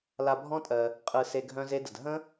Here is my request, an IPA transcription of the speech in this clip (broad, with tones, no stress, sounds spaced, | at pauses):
l a˧ bʱ ɔ̃˦ tʼ ɜ˧ | qʼ ɯ˧ s e˧ ɡʱ œ̃˦ z e˦ d ə˧ d ɦ ə̃˦